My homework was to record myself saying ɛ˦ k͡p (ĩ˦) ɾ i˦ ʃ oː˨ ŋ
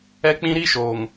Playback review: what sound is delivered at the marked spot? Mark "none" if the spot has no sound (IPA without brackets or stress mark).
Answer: ĩ˦